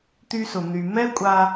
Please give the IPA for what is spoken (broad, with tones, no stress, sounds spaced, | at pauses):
t̪ y˧ s ʊ˩ n̪ y˩ m ɛ˥ kʷʼ a˧